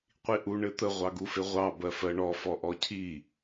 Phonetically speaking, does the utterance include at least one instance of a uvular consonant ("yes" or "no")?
yes